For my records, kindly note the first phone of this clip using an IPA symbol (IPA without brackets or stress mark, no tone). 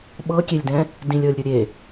ɓ